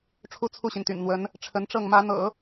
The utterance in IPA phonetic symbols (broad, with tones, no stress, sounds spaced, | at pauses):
ʈ͡ʂʰ u˥ t͡sʰ u˥˩ ɕ i˩ n t̪ y̰˨˩ n n̪ w ə˧˥ n | ʈ͡ʂʰ ə˧˥ n ʈ͡ʂ ɤ˥˩ ŋ m ä˧˥ n̪ ɤ̰˨˩˦